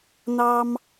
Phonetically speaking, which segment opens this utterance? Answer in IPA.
n̪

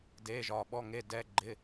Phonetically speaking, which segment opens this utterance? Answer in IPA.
d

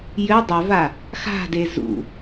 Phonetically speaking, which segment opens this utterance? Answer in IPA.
j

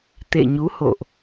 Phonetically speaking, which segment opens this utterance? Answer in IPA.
t̪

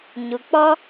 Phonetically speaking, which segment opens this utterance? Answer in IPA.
ɲ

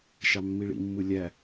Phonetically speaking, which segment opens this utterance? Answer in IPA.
ʃ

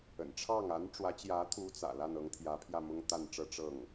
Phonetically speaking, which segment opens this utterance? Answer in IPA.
ə̰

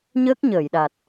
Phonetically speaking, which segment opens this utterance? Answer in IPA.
ɲ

